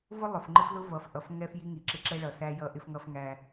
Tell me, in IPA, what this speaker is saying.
vʊ˦lˠʊ˨fŋ͡ǃɪ˦flʊ˦ vʌ˨fʔʌ˨f ŋɛ˦fji˦ ŋi˨ǁɪ˦ǁɛ˦ɭʌ˨ sæ˦jʌ˦ ʔɪ˦fŋʌ˦f ŋæ˦

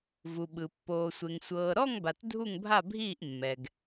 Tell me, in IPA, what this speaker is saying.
vu˨ɓɯ˨ pːoː˨sʷe˨ŋ sʷɤː˨ɾɔ˥˧ŋba˨t dʱu˥˧ŋbʱa˥˧bʱiː˥˧ʔ mːɛ˨ɡ

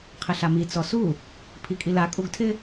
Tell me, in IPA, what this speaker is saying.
qʰɪɬami t͡sɔsu | pʰikʼila kʼuɡtʰɪ

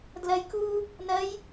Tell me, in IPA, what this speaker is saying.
dlɜjkuː | nɜj

